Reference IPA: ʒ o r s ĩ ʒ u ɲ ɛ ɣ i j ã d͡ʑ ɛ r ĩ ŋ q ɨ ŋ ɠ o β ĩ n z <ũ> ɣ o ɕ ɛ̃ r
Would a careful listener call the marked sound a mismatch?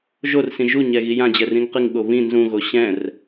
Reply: no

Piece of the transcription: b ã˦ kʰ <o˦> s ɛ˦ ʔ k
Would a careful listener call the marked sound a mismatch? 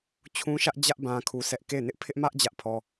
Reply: yes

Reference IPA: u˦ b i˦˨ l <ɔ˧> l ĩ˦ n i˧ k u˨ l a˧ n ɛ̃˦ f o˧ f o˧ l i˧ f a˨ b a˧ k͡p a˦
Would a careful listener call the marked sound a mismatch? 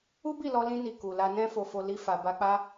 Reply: no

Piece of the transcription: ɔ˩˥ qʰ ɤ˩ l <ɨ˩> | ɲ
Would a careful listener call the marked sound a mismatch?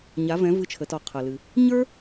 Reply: no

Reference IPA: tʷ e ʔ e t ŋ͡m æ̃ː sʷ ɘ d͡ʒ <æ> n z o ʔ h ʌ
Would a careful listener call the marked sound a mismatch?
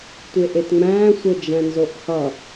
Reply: yes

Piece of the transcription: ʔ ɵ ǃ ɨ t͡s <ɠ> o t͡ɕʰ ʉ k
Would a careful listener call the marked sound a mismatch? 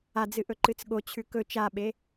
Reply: no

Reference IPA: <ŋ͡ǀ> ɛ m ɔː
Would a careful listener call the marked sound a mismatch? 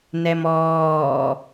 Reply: yes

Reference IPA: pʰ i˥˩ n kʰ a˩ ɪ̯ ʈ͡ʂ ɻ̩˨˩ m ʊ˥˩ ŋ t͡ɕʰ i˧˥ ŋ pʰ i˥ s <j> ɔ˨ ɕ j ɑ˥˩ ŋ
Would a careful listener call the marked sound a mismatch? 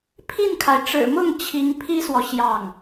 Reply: yes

